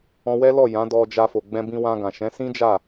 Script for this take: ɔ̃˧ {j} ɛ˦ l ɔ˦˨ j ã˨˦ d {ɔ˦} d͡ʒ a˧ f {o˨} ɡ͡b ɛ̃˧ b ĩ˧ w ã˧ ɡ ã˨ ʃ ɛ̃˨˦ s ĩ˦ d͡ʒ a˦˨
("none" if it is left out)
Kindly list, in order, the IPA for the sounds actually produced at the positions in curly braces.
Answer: w, ɔ˧, o˨

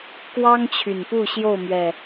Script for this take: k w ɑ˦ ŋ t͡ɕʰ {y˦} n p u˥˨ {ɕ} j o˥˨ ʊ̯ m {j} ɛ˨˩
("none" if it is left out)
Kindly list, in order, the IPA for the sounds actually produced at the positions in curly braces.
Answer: y˨˩, ɕ, ɥ

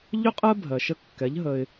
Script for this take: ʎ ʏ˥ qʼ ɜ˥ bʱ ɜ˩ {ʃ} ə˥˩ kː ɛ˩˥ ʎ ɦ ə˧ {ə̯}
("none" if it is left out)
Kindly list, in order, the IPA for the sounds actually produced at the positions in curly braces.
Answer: ʃ, ɪ̯

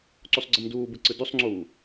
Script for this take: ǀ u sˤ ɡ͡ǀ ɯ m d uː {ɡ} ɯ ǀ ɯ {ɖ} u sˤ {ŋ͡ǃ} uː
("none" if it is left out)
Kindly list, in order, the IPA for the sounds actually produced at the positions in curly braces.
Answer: b, d, ŋ͡ǀ

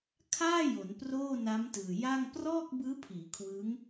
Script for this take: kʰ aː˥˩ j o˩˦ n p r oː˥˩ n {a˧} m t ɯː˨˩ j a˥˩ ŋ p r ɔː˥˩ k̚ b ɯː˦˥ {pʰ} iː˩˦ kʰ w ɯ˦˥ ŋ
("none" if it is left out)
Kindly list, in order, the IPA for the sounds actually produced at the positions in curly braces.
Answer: a˦˥, pʰ

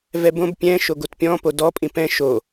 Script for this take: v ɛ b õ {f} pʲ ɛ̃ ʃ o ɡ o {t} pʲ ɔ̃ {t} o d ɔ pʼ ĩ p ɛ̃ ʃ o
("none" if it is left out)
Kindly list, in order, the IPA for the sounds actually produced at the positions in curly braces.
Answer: b, t, p

